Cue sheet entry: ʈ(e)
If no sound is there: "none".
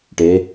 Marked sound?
e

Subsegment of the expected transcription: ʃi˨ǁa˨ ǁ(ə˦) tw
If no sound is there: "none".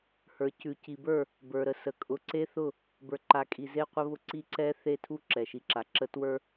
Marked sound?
ə˦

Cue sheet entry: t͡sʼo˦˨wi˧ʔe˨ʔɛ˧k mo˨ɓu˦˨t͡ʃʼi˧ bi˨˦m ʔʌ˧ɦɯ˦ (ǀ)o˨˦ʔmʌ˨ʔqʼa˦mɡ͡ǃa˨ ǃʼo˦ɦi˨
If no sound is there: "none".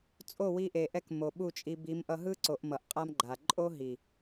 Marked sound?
ǀ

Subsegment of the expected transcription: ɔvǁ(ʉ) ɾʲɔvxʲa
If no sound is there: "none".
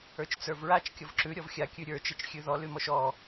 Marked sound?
ʉ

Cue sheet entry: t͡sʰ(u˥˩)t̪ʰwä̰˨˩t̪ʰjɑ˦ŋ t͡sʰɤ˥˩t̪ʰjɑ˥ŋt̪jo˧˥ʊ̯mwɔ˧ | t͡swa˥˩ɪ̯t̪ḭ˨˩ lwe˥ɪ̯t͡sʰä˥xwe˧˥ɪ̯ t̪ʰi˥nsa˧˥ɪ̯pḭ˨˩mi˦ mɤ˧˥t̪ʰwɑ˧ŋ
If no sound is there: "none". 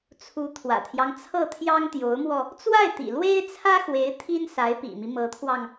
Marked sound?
u˧˥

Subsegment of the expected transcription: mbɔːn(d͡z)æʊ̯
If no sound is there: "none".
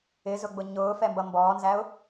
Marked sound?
z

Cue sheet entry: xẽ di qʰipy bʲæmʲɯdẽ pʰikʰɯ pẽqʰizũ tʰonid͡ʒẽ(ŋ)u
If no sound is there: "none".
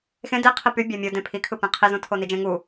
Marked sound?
ŋ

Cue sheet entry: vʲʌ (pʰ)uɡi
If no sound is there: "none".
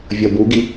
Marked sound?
b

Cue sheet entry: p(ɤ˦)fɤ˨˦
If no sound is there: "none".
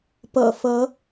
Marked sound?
ɤ̰˨˩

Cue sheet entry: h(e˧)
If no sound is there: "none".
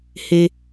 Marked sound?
e˧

